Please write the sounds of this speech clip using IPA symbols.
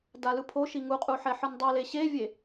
d a l ɯ pʰ o ʃ i ŋ u qʼ u ħ ɛ ħ ɯ n dˤ ɯ l e ɕ e vʲ e

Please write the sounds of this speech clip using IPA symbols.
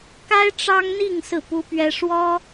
k a˥ ɪ̯ ʈ͡ʂ ɑ˥ ŋ n̪ i˥˧ ŋ s ɹ̩˥˩ p u˥ p ɥ ɛ˥ ʂ w ɔ˥

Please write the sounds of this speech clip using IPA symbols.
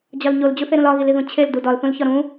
d͡ʑ ɒ l ɲ o l d͡ʑ u θ e ɾ ũ l ɒ ɣ i l i ð ũ t͡ɕʰ e l d u d ɒ l θ ũ l ç ɒ ɾ ũ

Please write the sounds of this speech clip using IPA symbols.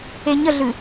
e ɲ ə ɮ ɨ

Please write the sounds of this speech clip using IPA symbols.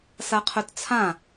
s a qʰ œ t t͡sʰ ã

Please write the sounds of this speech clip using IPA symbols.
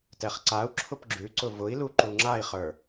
t ɛ χ ǀ a u̯ ǁʰ ʊ p ɡ͡ǁ ʉ ǀ ʊ v ʊ i̯ l u ǃ u ŋ͡ǁ a i̯ χ ə˞

